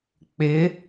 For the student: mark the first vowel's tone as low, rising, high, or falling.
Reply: rising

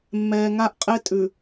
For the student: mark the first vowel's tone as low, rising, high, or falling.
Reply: low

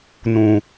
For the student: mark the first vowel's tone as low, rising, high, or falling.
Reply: low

